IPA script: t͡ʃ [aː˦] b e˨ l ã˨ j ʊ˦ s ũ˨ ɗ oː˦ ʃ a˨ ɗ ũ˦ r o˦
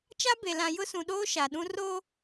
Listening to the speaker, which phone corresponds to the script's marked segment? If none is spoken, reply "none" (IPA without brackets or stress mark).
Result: a˦